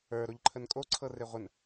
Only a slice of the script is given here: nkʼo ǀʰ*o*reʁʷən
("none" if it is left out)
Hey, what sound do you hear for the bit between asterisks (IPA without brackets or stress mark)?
ɤ